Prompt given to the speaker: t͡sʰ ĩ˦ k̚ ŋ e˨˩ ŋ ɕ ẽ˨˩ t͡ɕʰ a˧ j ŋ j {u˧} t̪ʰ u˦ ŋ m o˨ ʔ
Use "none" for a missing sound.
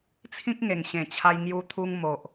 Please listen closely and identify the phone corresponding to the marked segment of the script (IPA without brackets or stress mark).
u˧